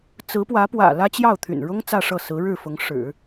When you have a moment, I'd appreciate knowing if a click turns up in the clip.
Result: no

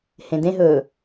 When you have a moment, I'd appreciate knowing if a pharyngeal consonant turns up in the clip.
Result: no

